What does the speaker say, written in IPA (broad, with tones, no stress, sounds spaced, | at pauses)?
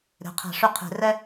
ɾ e̤˩˥ qʰ æ̤˨˩˦ ʂ ʉ˧˥˧ qʰ e̤˨˩˦ r ɛ˥